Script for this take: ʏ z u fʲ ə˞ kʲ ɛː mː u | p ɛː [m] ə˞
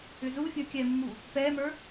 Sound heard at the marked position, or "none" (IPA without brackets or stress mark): m